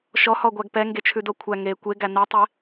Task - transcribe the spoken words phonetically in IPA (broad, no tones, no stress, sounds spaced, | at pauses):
ʃ ɔ h ɔ ɡʷ æ ɡ p ɛ ŋ ɡ e t͡ʃʰ ʉ d o kʷʰ æ ŋ e kʷ e ɡ æ n ɛ tˤ e